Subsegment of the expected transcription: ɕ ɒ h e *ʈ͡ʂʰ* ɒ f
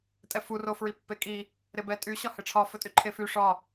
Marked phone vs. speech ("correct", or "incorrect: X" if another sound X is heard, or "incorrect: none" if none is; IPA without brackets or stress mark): correct